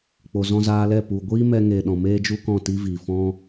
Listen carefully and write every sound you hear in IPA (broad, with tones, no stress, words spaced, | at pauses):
k͡po˨zɔ̃˧zaː˧lɛ˦˨ pu˨ ɡʷiː˦mɛ˧ ŋe˨ ɗɔ̃˨ meː˦d͡ʒu˦kɔ̃˦˨ ti˦vi˨ fɔ̃˦